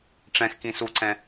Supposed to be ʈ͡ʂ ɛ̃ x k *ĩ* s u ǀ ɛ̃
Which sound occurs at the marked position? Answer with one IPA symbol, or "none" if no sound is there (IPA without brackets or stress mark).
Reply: ĩ